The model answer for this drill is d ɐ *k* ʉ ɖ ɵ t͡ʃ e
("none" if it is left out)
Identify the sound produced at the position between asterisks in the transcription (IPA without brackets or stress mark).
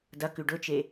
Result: k